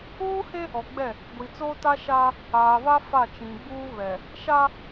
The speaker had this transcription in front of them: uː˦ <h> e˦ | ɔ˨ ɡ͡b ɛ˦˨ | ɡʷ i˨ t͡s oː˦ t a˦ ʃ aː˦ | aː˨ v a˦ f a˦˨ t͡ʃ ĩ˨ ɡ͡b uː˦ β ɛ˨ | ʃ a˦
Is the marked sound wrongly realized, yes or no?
no